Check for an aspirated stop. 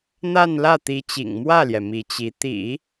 absent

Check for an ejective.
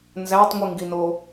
absent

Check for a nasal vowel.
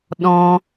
present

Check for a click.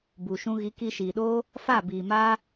absent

